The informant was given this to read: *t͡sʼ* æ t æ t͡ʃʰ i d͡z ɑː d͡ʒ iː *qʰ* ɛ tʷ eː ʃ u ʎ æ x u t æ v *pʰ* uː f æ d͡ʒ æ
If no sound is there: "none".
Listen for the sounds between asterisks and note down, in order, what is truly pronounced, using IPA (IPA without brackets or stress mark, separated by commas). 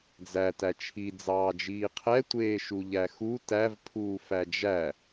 d͡z, qʰ, pʰ